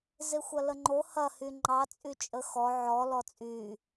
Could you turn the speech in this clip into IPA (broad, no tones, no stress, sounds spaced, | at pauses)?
z e xʷ ɐ l ə ŋ͡ǃ o h ɐ h y ŋ͡ǃ ɑ t͡sʼ y t͡ʃʼ ə x ɔ ʕ ɔ l ɔ t͡sʼ y